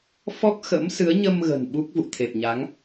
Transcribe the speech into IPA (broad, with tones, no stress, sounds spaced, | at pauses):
f ɔ˦˥ k̚ x ə̰˧˥ m s ɨ˨˦ ə̯ ɲ ə˧ m ɣ ə̤˨˩ n ɓ u˦˥ k̚ v ṵ˧˨ t̪ʰ e˨˩ p̚ ɲ a˨˦ ŋ